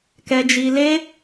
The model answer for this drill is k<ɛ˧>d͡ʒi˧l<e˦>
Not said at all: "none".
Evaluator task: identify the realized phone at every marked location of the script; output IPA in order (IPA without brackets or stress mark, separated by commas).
ɛ˧, e˦